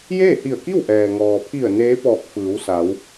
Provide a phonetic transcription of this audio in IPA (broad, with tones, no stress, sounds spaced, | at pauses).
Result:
j eː˥˨ h i˧˩ ə̯ k i˥˨ w ʔ ɛː˩ ŋ ɔː˩ pʰ i˧˩ ə̯ n eː˧˥ p ɔː˧˩ k̚ f ɯː˩˧ w s a˩˧ w